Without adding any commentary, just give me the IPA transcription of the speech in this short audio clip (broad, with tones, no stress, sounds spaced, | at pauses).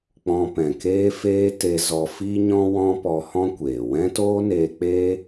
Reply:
k͡p ɔ̃˧ p ɛ̃˨ k eː˦ f eː˦ t e˧ z ɔ˧ f i˦ ɲ ɔ̃˦ w ɔ̃˦ p ɔ˧ h ɔ̃˦ kʷ eː˨ w ɛ̃˦ t oː˦ n eː˧ k͡p eː˦